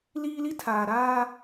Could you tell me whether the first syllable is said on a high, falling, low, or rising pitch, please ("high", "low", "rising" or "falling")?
high